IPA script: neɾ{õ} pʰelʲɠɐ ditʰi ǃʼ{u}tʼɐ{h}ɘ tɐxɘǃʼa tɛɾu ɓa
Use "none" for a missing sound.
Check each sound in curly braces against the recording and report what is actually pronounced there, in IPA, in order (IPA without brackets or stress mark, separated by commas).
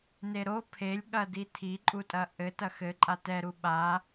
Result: o, u, ʔ